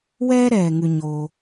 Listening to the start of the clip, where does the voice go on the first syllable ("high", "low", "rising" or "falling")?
high